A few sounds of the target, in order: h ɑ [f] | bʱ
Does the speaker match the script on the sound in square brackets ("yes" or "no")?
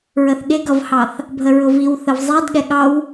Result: no